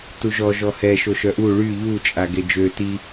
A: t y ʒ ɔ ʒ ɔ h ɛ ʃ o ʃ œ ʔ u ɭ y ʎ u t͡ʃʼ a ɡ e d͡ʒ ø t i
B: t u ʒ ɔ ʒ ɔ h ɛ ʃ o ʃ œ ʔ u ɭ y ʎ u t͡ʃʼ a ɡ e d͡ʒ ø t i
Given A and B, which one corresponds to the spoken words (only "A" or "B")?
B